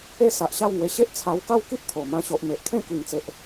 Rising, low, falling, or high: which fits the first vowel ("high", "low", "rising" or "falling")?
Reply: high